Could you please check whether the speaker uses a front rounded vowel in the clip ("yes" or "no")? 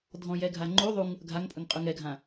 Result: no